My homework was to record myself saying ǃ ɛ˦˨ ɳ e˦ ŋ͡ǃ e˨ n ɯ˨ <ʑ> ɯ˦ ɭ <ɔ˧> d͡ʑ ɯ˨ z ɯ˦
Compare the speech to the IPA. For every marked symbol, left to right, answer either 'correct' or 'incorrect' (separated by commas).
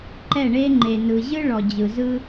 correct, incorrect